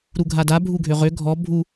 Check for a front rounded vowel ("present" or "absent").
present